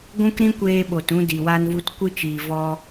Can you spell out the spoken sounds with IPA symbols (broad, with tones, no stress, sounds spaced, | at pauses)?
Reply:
ɡʷ ũ˦ k ɾ ĩ˦ kʷ eː˧ ɓ o˨ t ũ˧ d i˨ w a˧ n v u˧ t kʷ ɨ˧ t͡ʃ iː˨ v ɔ˧